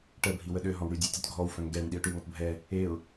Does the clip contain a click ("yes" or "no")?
no